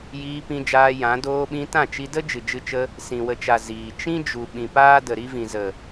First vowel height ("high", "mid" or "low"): high